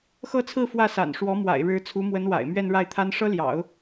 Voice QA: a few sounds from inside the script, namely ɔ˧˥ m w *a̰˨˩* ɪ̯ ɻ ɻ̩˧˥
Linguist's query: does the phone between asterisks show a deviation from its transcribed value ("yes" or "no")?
no